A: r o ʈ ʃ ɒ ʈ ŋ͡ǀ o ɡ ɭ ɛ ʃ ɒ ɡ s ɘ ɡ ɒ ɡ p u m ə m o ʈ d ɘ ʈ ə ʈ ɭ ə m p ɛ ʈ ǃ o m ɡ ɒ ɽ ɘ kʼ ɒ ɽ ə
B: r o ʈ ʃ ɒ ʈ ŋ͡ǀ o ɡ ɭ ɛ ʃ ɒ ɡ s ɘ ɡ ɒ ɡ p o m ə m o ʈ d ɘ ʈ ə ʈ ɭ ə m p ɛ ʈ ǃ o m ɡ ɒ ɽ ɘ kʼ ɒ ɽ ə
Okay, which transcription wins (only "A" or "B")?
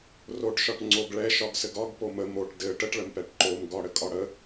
B